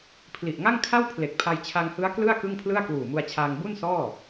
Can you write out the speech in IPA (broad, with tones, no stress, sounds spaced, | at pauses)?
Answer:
pʰ l i˨˩ ʔ ŋ a˥˩ ŋ kʰ a˥˩ w pʰ l e˨˩ k̚ pʰ a˧ j t͡ɕʰ a˧ ŋ h ɯ˦˥ a̯ k l ɯ˥˩ a̯ k ɯ˥˩ ŋ pʰ l ɯ˥˩ a̯ k w uː˨˩ m u˧ a̯ t͡ɕʰ aː˧ ŋ b u˥˩ n s ɔː˥˩